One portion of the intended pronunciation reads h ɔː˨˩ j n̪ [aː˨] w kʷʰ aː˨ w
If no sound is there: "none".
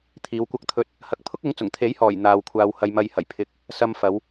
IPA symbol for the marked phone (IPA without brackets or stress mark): aː˨